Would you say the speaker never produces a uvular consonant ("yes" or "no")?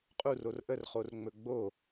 no